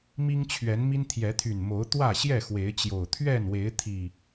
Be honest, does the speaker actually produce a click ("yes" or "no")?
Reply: no